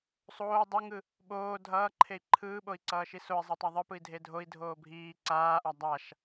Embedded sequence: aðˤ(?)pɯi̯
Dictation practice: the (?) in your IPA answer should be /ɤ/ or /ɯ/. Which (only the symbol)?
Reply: ɯ